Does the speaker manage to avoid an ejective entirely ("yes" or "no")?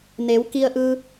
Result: yes